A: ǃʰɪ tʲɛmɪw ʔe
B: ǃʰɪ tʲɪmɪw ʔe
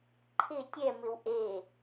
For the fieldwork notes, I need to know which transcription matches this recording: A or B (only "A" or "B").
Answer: A